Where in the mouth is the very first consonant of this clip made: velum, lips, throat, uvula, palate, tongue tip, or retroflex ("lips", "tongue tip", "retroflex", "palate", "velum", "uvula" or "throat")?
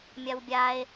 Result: lips